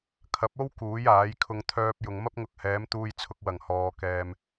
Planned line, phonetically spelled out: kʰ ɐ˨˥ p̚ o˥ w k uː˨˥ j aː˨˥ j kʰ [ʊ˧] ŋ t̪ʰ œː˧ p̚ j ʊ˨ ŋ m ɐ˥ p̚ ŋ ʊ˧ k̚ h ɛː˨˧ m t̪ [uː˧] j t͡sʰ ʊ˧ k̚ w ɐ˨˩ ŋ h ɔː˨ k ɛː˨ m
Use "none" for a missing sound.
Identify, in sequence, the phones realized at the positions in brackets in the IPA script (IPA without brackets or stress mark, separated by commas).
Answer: ʊ˧, uː˧